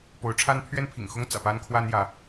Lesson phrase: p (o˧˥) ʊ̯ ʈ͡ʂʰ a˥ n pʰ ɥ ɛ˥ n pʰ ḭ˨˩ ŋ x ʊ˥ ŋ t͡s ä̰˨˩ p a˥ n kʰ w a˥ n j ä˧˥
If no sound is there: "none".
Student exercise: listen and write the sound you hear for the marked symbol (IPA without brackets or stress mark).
o˧˥